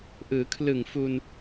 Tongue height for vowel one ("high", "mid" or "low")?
high